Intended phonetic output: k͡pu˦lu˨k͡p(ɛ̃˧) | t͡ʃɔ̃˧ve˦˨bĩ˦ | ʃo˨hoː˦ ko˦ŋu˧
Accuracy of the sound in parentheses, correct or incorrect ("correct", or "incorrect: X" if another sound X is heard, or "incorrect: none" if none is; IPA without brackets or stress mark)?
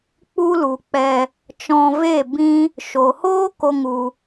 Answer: incorrect: ɛ˧